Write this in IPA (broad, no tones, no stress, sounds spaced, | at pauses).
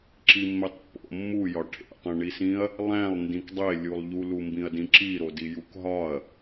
ǁ i mː e tˤ pː o̰ mː u j ɒ ʈʰ ḛ tˤ ĩ ɳ i s ĩ ɐ̯ | lˠ æ̃ lˠ n d ĩ k dˤ e lʲ u lˠ ʎ u l u m b ĩ ɐ̯ d ĩ ǁ i ɾ o d i j u k ɦ ɒ ɐ̯